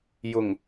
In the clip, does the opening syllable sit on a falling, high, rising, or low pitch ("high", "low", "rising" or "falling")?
low